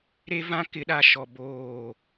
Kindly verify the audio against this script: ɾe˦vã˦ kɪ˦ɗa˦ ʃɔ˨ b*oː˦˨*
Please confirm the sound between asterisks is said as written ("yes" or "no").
yes